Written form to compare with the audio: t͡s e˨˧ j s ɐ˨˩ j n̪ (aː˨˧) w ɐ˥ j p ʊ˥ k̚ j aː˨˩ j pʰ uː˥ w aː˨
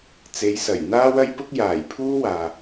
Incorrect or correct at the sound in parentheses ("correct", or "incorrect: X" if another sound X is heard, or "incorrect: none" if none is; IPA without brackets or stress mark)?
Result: incorrect: aː˥